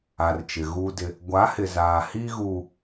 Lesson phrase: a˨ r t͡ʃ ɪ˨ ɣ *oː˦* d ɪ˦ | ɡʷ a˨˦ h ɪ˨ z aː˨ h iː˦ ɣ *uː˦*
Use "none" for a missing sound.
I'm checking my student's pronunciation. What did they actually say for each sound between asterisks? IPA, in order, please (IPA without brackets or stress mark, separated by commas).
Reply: uː˦, u˦